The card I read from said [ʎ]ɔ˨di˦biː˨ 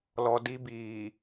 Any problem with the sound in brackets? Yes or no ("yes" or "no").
yes